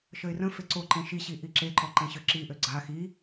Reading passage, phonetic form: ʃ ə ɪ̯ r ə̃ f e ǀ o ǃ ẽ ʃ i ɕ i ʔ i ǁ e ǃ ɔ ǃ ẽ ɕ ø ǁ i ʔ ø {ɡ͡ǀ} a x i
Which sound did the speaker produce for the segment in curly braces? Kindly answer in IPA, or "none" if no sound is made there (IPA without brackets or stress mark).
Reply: ɡ͡ǀ